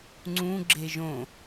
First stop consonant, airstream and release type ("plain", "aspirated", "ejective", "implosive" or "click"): click